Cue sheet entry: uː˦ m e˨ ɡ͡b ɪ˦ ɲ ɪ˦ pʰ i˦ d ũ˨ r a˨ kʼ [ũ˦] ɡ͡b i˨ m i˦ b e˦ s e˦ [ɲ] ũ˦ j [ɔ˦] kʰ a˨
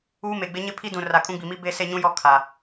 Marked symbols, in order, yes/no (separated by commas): yes, yes, yes